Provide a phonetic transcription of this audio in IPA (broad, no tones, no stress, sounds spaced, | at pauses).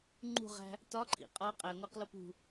ŋ͡ǃ ṳ ʁ æ̤ | t ɒ ǃʰ ḭ qʼ ɒ qʼ æ ŋʷ æ q l o p ṳ